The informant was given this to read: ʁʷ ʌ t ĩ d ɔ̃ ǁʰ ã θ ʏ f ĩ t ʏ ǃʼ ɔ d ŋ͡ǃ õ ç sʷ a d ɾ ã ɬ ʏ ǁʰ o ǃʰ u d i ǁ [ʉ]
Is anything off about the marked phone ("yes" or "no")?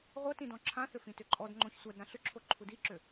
yes